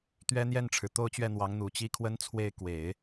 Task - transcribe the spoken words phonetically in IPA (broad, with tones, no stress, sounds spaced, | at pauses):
t̪ ɥ ɛ˥ n̪ j ɛ˥˩ n ʈ͡ʂʰ ɻ̩˩ t̪ o˥˧ ʊ̯ t͡ɕ ɥ ɛ˥˩ n̪ w ɑ˧˥ ŋ n̪ u˨˩ t͡ɕ i˥˩ kʰ w ə˥ n t͡sʰ w e˥˩ ɪ̯ k w e˨˩˦ ɪ̯